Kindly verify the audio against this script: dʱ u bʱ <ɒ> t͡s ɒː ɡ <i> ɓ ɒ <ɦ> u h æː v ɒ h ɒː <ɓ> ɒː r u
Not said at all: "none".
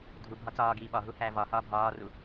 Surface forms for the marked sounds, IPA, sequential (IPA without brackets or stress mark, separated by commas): ɒ, iː, ɦ, bʱ